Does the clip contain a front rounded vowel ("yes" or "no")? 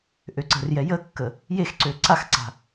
yes